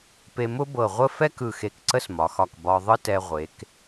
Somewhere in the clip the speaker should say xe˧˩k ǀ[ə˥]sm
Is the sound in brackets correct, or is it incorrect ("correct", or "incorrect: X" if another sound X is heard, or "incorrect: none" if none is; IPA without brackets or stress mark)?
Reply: correct